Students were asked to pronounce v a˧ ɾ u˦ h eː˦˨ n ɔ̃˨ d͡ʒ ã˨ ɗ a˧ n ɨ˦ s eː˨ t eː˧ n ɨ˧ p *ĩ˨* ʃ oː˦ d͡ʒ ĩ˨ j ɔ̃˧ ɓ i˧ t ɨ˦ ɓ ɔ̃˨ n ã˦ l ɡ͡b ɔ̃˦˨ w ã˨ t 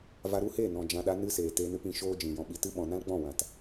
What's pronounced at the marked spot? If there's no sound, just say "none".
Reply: ĩ˨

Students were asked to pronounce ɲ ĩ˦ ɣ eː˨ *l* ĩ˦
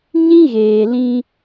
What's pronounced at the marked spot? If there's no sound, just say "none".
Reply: l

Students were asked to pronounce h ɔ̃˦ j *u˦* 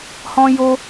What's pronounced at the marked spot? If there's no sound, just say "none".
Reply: o˦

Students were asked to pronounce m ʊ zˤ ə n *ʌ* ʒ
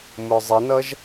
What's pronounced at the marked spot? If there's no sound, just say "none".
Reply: ʌ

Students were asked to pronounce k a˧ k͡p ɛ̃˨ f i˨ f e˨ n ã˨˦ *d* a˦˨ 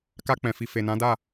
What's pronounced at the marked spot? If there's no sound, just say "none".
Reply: d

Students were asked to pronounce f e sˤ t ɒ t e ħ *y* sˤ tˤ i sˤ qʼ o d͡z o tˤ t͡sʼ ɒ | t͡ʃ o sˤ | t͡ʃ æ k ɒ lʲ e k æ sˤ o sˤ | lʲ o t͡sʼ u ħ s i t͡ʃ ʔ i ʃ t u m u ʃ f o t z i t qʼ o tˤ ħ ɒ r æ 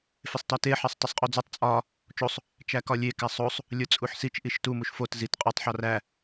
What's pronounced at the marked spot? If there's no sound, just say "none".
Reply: e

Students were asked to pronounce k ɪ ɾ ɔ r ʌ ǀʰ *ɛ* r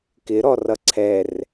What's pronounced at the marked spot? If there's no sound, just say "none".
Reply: ɛ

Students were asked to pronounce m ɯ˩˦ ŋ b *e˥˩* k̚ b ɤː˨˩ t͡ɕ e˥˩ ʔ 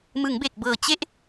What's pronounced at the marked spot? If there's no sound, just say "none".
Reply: e˨˩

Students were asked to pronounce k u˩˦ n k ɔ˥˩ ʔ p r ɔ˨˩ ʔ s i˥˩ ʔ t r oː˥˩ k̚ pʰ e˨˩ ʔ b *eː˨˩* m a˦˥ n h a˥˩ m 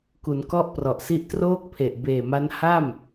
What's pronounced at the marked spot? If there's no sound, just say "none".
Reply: eː˨˩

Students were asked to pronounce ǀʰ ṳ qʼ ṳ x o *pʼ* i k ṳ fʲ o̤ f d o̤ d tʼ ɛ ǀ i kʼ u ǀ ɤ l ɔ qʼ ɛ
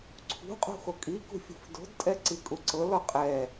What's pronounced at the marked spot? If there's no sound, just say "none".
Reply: kʼ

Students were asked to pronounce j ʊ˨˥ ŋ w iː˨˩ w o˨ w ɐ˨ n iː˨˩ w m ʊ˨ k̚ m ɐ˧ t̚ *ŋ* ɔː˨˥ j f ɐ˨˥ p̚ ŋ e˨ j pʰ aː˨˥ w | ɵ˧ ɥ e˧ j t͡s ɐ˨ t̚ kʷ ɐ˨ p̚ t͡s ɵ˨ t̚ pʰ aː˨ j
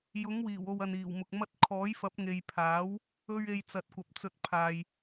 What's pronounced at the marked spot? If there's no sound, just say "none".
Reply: kʰ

